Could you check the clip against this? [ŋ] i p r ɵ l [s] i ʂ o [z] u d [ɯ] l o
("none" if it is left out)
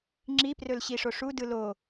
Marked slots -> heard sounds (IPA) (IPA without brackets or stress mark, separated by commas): ŋ͡ǁ, ɕ, ʂ, ɯ